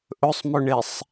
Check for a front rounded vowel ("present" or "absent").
absent